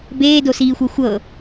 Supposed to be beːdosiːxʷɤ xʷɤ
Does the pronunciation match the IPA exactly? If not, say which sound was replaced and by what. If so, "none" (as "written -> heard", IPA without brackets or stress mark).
none